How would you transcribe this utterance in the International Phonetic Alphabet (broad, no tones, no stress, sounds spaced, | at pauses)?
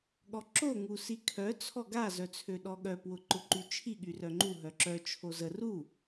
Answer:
ɠ ɔ ǁ o ŋ u s i kʰ œ t͡sʰ ɔ ɡ a z œ t͡sʰ ø ɗ ɔ ɠ œ p w ʊ ǃ ʊ ǃ y t͡ʃʰ i ɠ y r œ ŋ͡ǃ u ɦ œ ǁ œ t͡ʃʰ o z ə r u